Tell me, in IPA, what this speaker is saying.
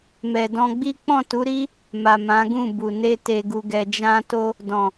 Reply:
mɛ˨dɔ̃˧ɡ͡bi˦ k͡pɔ̃˦˨tu˨˦ɾi˦ | ma˨ mã˨˦ɡũ˦˨bu˨ ne˧te˨ɡu˨ɡɛ˨ d͡ʒã˧to˧ | dɔ̃˨

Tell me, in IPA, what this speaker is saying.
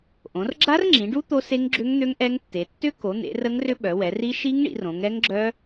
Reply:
ʔõ˩˧rɡ͡ǁa˦˥rŋ͡ǁĩ˩˧ɖu˦˥ t̪o˦˥se˦˥ŋɡ͡ǁʏ˦˥ŋn̪ø˦˥ŋ ʔɛ˦˥ŋtːe˩˧ tːʏ˦˥ko˩˧n̪ḛ˩˧ rə˦˥ŋrʏ˦˥ ɓœ˩˧wɛ˩˧ri˦˥ ʃi˦˥ŋɳḭ˩˧r õ˩˧ŋɛ˦˥ŋɡ͡ǁœ˦˥

